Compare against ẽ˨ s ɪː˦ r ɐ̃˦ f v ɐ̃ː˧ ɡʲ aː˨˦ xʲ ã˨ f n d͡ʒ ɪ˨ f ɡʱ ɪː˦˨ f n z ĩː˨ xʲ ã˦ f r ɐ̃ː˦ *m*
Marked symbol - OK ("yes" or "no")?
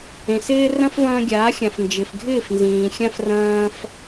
no